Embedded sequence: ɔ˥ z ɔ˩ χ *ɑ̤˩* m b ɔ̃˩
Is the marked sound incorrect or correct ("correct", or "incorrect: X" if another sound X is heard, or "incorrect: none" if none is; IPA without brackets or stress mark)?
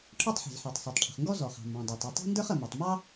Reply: correct